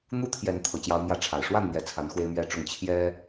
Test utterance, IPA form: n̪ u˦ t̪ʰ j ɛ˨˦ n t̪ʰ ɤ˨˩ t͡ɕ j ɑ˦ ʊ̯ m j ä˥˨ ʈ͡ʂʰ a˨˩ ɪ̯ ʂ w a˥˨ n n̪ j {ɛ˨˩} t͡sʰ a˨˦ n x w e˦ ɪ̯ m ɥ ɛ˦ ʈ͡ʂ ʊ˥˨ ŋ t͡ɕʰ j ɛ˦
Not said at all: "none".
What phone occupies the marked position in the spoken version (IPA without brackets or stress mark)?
ɛ˨˩